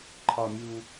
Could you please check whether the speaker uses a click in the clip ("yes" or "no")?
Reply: yes